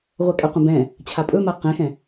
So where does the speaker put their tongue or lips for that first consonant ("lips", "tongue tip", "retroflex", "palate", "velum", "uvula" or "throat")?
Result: uvula